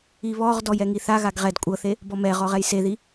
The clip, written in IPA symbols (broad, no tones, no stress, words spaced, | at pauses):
iβɔʁdɔj ɛŋiθaɣaɡ ʁɛd kʷʼɤθe | bɔmɛʁɔʁ ɛjseði